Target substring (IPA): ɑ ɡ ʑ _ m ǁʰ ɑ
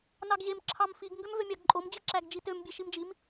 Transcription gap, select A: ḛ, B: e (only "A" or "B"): B